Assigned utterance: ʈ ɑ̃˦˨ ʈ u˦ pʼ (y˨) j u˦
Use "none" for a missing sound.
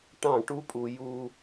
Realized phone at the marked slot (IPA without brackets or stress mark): u˨